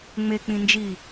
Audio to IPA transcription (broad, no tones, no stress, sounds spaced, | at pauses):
ŋ͡m e k͡p ĩ n d͡ʒ i